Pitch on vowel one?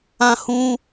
high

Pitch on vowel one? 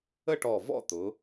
falling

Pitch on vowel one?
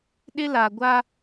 high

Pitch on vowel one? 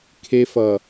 high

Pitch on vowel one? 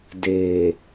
low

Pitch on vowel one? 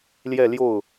falling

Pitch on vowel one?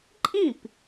falling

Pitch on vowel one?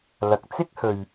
low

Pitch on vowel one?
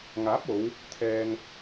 rising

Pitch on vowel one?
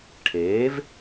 rising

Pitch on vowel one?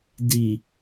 low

